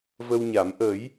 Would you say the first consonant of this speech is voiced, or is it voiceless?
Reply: voiced